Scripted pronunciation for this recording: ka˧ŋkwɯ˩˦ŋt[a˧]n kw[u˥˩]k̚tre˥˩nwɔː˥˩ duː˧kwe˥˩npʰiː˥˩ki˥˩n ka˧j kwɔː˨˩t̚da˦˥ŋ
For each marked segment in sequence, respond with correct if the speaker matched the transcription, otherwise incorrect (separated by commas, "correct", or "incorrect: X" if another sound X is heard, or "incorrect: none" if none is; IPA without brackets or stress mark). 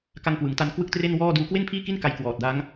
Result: correct, incorrect: ɯ˥˩